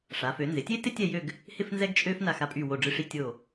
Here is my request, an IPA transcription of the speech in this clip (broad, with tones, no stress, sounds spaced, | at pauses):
ʂ a˩˧ f ø˩˧ n z ɪ˩˧ tʲ e˥ t ɪ˥ tʲ ɛ˥˧ j ø˥˧ ɡ | h ɪ˥ f n z ɛ˥ ɡ t͡ʃʼ ø˥ f n a˧˩ x a˧˩ pʼ y˧˩ w o˧˩ ɖ͡ʐ ɨ˧ ʂ i˧ tʲ o˧˩